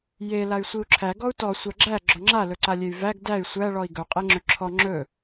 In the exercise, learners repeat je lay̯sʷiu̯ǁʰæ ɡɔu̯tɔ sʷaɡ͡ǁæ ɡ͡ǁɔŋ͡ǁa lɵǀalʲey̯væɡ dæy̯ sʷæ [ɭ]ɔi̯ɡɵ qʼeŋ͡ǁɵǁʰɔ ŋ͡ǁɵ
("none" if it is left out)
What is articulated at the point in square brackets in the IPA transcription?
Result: ɭ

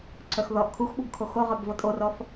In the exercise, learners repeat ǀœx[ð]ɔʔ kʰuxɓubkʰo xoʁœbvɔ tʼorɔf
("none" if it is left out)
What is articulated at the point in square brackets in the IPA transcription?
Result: ð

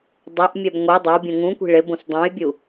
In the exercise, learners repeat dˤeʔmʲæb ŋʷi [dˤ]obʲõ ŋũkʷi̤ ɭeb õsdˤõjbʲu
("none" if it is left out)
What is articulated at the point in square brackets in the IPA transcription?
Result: dˤ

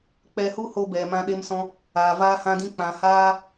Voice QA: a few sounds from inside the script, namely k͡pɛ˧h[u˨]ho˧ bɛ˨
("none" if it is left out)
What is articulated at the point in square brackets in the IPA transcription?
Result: u˦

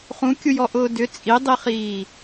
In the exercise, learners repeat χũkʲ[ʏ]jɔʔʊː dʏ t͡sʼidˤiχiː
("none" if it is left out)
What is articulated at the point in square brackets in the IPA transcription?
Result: u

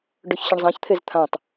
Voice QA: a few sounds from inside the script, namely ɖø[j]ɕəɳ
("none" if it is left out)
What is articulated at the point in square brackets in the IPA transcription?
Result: ç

